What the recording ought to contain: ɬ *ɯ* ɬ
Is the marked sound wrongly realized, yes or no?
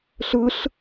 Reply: no